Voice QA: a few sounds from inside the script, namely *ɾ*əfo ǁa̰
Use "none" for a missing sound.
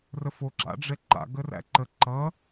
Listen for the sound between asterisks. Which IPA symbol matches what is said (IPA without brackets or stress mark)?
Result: r